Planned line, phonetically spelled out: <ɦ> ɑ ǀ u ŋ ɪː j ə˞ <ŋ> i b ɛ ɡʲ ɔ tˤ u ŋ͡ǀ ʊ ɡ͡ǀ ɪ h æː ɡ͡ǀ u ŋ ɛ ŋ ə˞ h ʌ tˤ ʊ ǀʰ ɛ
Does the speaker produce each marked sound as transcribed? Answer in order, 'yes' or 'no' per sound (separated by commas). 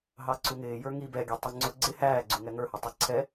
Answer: yes, yes